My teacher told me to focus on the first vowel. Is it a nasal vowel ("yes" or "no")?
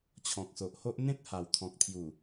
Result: yes